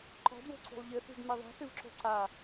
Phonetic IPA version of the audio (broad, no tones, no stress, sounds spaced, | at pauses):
ǃ ɔ̤ d w o̤ ǀ ṳ lˠ ʎ ɘ θ ṳ d m e ðˤ ɛ̤ θ ɨ v ǁ o̤ ǀ a